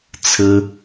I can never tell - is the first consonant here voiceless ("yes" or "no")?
yes